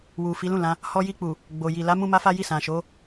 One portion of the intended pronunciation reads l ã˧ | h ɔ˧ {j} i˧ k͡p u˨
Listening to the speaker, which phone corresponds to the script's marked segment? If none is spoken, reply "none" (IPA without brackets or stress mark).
j